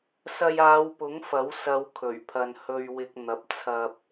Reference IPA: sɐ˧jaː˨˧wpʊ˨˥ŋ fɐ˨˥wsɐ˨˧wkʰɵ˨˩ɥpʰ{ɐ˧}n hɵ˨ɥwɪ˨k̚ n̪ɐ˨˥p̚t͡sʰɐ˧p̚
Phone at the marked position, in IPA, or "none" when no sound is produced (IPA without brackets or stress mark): ɐ˨